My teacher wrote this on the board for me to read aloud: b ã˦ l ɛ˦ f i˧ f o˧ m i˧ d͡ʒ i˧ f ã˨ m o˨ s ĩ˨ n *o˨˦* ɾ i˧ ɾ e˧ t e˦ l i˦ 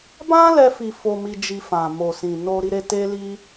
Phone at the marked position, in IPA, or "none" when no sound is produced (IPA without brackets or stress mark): o˧